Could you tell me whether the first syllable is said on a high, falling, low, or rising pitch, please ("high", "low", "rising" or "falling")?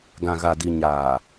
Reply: low